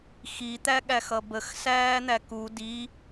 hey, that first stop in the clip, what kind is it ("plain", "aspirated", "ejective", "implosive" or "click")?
plain